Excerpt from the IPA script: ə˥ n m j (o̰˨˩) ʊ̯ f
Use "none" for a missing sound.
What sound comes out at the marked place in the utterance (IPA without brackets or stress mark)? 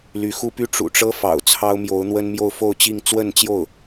o˥˧